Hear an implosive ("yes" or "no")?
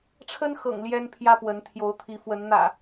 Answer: no